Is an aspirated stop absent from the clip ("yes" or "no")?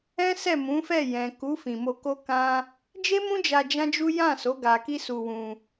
yes